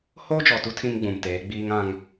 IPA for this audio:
hoː˦d͡ʒɔ˨tu˦ tʰĩ˦mɡ͡bũ˨mteː˨˦ ɡ͡biː˦ŋã˦ŋ

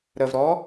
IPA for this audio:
ɾəvɾɔ

